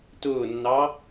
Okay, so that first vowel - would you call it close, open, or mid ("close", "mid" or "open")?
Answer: close